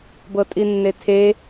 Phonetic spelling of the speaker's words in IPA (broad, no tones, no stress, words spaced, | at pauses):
bɤtʼinːetʰe